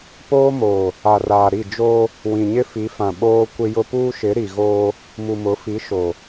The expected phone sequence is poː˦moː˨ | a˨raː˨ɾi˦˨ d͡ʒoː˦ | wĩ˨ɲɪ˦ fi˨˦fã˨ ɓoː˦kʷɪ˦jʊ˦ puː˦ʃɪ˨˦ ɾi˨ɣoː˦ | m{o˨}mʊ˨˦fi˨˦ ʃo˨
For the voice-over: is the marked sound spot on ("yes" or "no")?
no